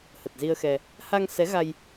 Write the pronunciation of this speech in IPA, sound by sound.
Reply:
hə˨˩t̚zi˧ə̯xɛ˧ | ha˧ŋsɛ˨˦ɣa˧j

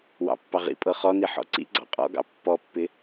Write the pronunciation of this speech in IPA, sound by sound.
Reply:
wɑ̰pːɑ ʁḭpʼɤ χɔni ħɔ̰ǀḭ ɡ͡ǀɑ̰qʼɔ̰ɡɑ̰ pːɔpːɪ

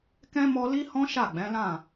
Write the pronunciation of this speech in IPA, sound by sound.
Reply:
kɛ̃˦ mɔ˦ li˦hɔ̃˦ ʃa˦˨ɡ͡bɛ̃˨˦lã˦˨

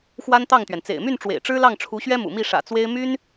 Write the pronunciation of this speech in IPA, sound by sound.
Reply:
xwa˥nt̪ɑ˥˩ŋt̪ɥɛ˩n t͡sḛ˨˩ɪ̯my˥˩n ʈ͡ʂwḛ˨˩ɪ̯ ʈ͡ʂɻ̩˥lɑ˥˩ŋ ʈ͡ʂʰu˧˥ɕɥɛ˥mṵ˨˩ mi˥˩ ʂä̰˨˩ t͡swe˥ɪ̯ my˥n

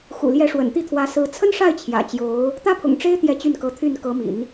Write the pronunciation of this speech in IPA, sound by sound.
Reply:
xṵ˨˩ljɛ˧˥ ʂwə̰˨˩nt̪i˥˩t̪ʰwä˧˥sɹ̩˧˥ t͡sʰə˥nʂa˥˩ɪ̯ t͡ɕʰjä̰˨˩t͡ɕjo˧˥ʊ̯ | t̪ä˥pʰʊ̰˨˩ŋʈ͡ʂe˥ɪ̯ t̪jɛ˥˧t͡ɕy˥˩nkɤ˧˥t̪ʰy˥˩n kɤ˧˥mḭ˨˩˦n

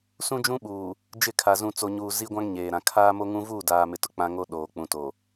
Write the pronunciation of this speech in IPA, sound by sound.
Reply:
sũ˦d͡ʒũ˦ɓuː˨ | d͡ʒɪ˦˨kʰa˨ zũ˨t͡so˨ɲuː˨ zi˦ɡʷã˦ŋ ɲeː˨ɾã˨ kʰaː˦mo˦ŋũ˦ vuː˦˨daː˨mɪ˨tʊ˨ k͡pã˦ŋo˦ ɗoː˨k͡pũ˨to˨

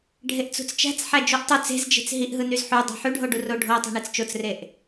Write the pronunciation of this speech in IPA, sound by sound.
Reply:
ɖʱeʔt͡sṳt͡st͡ʃæ̤t͡s ħæd͡ʒuʔtˤu t͡se̤zd͡ʒe̤t͡s ɦiʔɦɯ nyzħu dˤɑ̤ħyɖʱoɖu roɖʱo tˤi̤ɳet͡st͡ʃot͡sreʔ

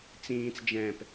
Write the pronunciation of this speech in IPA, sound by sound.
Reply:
t͡sĩːt͡sd͡ʒɛ̃ːp

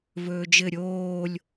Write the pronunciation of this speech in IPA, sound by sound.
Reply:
vɵːd͡ʒɘ ɾʲoːlʲ

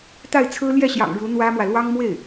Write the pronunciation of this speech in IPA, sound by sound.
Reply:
t̪a˥˩ɪ̯t͡sʰɹ̩˥ ljɛ˥˩ɕjɑ̰˨˩ŋ ɻu˧˥n̪wä˥mwä˨ lwɑ˥ŋmwe˥˩ɪ̯

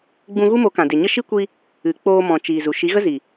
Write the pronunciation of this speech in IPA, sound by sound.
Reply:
ɡ͡bũ˧ɣu˦mo˨˦kã˨ de˨ɲə˦ ʃi˦kʷi˧ | ɨ˨k͡poː˧ mɔ̃˨t͡ʃiː˨ zu˨ʃi˨˦ɣə˦ zi˨

